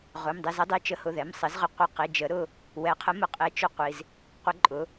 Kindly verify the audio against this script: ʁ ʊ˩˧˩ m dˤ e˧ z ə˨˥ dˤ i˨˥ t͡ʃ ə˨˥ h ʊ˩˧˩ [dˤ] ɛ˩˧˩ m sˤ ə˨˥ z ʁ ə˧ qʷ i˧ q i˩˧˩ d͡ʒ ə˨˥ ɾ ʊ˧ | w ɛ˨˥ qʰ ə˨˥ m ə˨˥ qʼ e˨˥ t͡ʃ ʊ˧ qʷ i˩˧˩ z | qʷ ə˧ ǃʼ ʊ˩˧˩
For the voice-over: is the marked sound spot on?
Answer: no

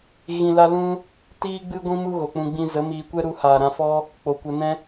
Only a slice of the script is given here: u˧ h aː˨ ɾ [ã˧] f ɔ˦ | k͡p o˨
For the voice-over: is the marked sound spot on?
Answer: yes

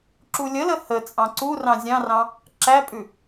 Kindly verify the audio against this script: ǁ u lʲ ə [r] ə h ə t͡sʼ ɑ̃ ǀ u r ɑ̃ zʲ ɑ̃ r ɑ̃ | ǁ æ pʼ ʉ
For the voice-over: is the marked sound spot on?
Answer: no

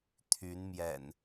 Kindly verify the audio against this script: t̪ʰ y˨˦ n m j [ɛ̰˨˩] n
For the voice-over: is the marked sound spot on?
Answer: yes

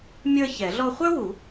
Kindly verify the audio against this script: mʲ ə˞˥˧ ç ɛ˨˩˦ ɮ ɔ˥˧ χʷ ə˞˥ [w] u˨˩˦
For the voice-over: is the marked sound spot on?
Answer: yes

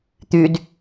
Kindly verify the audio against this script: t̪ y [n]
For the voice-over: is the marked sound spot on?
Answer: no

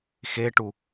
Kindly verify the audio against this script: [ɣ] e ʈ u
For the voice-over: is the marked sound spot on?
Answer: no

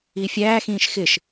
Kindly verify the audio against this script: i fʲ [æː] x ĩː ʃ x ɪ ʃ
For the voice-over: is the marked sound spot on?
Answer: yes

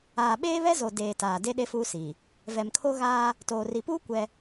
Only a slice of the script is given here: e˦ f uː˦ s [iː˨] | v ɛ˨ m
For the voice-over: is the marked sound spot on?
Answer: yes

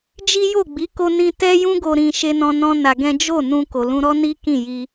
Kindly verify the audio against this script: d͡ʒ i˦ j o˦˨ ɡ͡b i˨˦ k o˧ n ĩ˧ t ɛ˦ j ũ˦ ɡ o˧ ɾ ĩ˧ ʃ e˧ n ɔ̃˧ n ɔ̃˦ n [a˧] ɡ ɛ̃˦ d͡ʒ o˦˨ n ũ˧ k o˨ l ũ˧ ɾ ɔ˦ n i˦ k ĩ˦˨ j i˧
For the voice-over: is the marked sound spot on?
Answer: yes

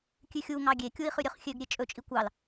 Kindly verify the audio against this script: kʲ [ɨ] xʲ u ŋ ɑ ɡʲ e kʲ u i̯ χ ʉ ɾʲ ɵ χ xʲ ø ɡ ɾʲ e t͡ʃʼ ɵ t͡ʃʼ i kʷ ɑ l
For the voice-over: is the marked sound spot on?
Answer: no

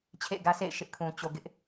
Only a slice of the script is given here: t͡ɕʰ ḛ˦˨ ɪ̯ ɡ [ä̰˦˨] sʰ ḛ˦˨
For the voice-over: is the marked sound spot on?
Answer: no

